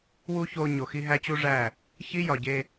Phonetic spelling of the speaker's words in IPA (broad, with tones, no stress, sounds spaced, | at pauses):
w u˦ ç o˧ ɲ o˨ x i˧ ɦ æ˦ t͡ɕ u˦ ʐ æ˦˨ | ç i˦ j ɒ˨ ɟ e˧